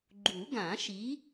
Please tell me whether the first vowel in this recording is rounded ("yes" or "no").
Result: yes